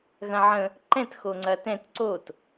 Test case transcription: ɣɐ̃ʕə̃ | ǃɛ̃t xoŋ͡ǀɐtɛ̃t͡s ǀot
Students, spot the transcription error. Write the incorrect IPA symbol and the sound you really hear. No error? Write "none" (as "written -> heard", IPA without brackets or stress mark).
t͡s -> t